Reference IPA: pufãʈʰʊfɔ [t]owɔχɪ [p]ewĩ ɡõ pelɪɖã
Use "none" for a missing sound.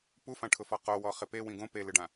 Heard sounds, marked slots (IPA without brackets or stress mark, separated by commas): q, p